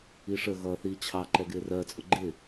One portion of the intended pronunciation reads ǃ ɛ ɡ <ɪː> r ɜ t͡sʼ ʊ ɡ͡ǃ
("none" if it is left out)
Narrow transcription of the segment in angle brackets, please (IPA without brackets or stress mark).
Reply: ɪː